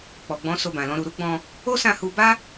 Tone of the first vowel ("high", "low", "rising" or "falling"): low